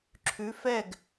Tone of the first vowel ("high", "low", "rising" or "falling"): rising